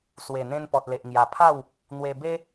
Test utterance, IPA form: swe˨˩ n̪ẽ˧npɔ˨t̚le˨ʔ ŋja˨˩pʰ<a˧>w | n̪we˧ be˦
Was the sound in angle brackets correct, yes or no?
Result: no